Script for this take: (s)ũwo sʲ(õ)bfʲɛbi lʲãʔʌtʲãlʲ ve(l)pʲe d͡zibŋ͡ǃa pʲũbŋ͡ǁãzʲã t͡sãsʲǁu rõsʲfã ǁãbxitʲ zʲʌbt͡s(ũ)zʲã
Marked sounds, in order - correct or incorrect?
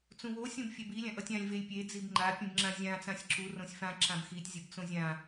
incorrect, correct, incorrect, incorrect

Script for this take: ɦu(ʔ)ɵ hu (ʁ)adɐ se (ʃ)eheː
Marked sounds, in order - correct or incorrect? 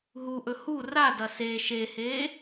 correct, incorrect, correct

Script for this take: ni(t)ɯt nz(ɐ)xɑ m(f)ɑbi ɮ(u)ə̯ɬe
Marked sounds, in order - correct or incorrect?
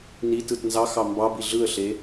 correct, incorrect, incorrect, incorrect

